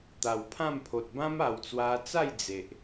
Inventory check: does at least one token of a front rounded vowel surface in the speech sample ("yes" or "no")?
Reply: no